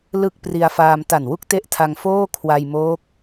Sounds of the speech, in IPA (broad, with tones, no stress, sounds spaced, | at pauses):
l ɯ˥˩ k̚ p r i˧ a̯ f aː˧ m t a˨˩ n w u˥˩ k̚ t e˦˥ ʔ tʰ a˧ ŋ f oː˥˩ kʰ w a˧ j m oː˦˥ k̚